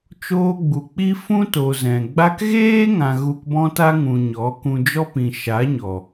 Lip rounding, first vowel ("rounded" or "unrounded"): rounded